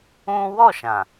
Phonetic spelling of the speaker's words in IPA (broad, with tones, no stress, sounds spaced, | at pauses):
ũ˦ w ɔ˦˨ ʃ ã˨